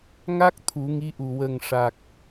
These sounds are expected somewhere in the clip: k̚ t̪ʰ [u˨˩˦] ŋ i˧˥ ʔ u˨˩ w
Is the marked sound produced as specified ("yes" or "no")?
yes